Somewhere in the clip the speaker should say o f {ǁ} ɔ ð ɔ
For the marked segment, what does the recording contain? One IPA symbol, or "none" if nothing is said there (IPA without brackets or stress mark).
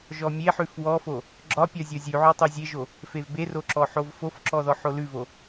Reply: ǁ